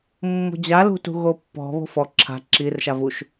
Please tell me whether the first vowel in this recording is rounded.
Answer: yes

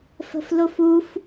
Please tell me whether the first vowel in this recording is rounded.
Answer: no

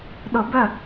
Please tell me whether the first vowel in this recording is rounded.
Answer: yes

